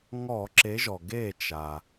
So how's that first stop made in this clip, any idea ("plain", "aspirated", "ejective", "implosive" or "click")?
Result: click